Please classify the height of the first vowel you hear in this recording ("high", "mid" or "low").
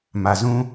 low